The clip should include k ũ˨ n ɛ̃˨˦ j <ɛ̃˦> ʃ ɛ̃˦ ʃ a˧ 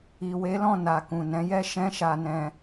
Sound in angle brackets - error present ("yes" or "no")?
yes